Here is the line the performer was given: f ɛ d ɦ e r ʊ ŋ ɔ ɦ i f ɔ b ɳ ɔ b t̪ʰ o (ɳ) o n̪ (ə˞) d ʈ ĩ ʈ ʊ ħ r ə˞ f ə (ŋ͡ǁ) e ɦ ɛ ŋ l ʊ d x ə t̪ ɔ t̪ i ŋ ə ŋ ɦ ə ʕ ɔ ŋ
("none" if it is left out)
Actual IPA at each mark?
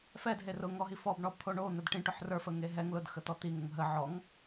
ɳ, ə, ŋ

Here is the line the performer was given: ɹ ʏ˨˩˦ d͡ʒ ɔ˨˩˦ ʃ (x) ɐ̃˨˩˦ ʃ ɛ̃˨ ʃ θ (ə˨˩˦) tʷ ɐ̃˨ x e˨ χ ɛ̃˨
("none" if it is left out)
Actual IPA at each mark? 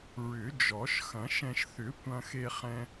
x, ʏ˨˩˦

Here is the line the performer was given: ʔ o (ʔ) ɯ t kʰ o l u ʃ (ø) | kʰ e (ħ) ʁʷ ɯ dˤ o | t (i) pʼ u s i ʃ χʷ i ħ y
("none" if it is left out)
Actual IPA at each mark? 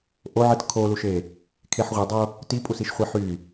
ʕ, e, ħ, i

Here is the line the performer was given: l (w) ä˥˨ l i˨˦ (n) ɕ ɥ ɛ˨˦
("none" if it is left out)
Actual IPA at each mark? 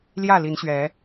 j, n

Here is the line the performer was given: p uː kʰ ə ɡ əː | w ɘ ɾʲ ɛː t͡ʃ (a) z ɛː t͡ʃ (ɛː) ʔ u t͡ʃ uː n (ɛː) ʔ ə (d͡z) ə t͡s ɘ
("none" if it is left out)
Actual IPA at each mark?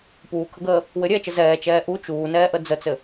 ə, ɛː, ɛː, d͡z

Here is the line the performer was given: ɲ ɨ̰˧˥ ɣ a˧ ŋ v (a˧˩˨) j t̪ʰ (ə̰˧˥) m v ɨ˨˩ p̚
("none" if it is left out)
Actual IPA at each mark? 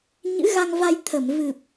a˧, ə˧˩

